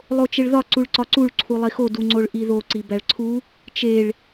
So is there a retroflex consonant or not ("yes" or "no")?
yes